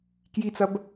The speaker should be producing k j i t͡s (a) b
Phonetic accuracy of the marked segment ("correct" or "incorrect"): incorrect